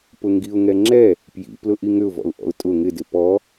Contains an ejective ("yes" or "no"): yes